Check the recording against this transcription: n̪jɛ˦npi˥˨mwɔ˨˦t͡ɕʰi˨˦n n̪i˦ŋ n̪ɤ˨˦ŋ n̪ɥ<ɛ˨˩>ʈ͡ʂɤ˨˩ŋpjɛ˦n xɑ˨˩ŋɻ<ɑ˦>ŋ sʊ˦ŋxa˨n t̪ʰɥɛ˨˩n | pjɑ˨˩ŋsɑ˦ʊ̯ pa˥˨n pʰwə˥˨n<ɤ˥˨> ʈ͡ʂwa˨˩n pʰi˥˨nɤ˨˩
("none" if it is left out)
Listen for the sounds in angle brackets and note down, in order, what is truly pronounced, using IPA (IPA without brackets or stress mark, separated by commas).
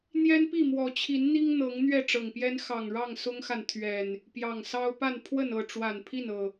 ɛ˥˨, ɑ˥˨, ɤ˥˨